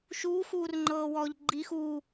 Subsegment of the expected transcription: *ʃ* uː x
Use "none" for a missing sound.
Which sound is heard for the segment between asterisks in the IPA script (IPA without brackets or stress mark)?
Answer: ʃ